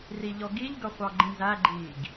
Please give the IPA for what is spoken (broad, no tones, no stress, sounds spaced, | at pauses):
r i ʎ ɔ ɡ i ʎ ɡ ʌ χʷ ɑ ɡ͡ǃ ĩ z æ ɡ͡ǃ iː ɡ